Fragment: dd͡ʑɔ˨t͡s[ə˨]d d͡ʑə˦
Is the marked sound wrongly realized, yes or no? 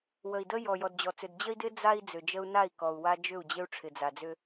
yes